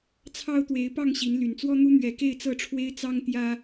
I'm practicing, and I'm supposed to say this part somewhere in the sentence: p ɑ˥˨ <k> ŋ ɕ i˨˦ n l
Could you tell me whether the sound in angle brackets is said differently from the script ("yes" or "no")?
yes